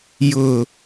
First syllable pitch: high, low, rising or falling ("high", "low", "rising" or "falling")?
low